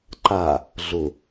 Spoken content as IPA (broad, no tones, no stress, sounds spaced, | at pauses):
ǃ a | ɮ ʊ